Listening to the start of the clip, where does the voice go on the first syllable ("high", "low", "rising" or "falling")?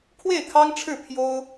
falling